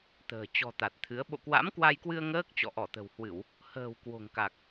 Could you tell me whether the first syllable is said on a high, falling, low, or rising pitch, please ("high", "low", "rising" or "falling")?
low